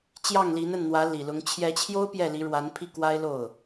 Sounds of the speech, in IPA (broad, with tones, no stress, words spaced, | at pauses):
t͡ɕjɑ˥˩ŋli˧˥nə˥˩nn̪wä˧˥ li˨˩lʊ˧˥ŋ t͡ɕʰjɛ˧˥t͡ɕʰjo˥ʊ̯ pjɛ˥˩li˧˥ɻwa˧˥n pʰi˥˩kwa˥ɪ̯ lo˥˩ʊ̯